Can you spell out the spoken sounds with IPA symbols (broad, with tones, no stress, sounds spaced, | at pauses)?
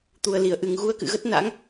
t̪ u˨˩ ə̯ l i˧˩ ə̯ ʔ ɨ˨˩ ŋ ɣ u˧ ə̯ k ɨ̰˧˨ ɣ ə˦˥ t̚ n a̰˧˥ ŋ